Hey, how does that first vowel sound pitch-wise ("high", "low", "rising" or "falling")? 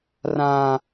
high